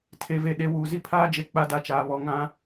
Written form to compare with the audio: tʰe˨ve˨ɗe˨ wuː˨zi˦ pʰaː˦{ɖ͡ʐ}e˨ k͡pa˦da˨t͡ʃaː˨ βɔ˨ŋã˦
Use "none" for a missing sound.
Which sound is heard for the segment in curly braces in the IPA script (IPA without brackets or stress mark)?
d͡ʒ